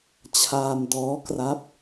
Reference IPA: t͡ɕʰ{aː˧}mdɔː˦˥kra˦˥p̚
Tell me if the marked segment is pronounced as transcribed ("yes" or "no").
yes